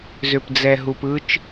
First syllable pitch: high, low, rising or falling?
low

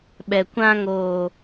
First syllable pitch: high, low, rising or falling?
low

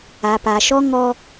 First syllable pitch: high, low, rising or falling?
low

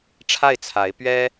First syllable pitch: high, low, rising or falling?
falling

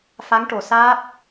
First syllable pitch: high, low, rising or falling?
rising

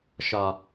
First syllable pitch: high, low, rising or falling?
low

